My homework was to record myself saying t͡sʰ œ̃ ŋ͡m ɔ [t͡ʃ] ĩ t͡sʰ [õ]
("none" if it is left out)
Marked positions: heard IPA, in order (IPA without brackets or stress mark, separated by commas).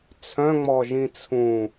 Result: ʒ, ũ